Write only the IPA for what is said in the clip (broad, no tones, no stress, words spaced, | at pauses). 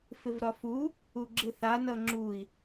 fɪvɾɒfu | uɡ͡ǁɪθa nʌŋ͡ǁui̯